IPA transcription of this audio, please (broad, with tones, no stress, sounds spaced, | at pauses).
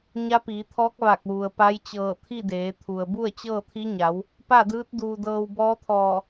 ɲ a˧˥ p iː˩˧ t̪ʰ ɔː˧˥ k̚ ʋ a˧˩ k̚ ʋ u˩ ə̯ p a˧˥ j t͡ɕ ɤː˧˩ t̪ʰ i˥˨ d eː˩˧ t̪ʰ u˩ ə̯ b u˥˨ ə̯ t͡ɕ ɤː˥˨ t̪ʰ i˧˥ ɲ a˩˧ w | p a˥˨ d ɯː˧˥ t̚ d uː˧ d ɤː˧ w b ɔː˧˥ t̪ʰ ɔː˧˩